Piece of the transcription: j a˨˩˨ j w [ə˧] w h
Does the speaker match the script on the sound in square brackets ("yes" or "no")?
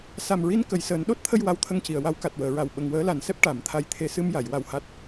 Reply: no